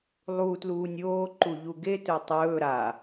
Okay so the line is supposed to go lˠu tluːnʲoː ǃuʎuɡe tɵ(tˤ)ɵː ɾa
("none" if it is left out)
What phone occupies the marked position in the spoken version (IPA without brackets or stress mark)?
tˤ